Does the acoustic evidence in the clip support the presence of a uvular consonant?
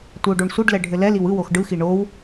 no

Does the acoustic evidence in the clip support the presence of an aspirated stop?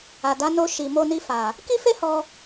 no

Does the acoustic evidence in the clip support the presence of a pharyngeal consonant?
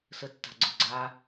no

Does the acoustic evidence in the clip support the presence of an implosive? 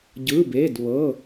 no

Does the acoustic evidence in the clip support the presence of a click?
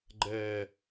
yes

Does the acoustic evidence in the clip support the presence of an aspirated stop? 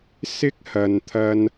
yes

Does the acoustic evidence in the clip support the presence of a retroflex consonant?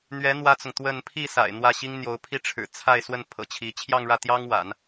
yes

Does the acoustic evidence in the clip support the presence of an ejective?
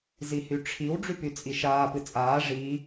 yes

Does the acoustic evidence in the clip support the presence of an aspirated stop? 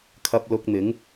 yes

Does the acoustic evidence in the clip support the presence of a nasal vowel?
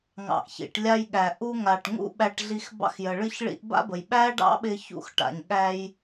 no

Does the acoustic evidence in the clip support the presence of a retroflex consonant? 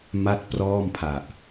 no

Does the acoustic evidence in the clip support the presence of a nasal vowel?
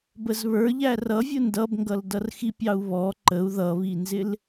no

